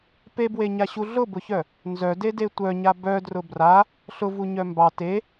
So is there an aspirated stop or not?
no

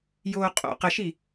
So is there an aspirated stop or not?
no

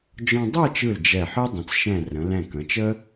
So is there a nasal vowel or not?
yes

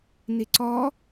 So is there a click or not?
yes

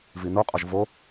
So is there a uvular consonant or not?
yes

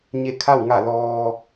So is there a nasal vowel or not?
no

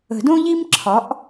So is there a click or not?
yes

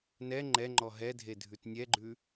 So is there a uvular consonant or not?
no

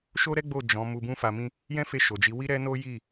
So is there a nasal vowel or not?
yes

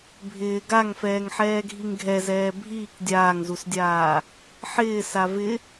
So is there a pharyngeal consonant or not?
yes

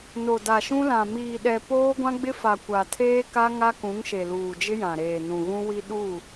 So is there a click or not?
no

